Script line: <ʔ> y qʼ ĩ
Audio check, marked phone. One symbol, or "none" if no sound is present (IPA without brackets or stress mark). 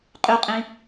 qʼ